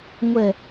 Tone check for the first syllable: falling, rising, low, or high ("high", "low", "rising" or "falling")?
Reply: low